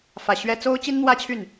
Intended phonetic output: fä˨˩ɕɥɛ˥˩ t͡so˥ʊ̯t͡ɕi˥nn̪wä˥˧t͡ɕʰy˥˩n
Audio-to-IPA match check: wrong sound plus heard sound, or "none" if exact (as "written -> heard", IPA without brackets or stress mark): none